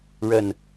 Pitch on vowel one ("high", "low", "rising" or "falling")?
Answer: falling